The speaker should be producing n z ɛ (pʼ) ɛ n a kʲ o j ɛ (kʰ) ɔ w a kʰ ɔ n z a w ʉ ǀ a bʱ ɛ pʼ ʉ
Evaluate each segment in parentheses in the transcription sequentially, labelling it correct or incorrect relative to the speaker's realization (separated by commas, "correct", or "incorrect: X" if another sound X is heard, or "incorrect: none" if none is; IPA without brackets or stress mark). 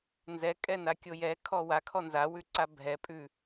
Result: incorrect: kʼ, correct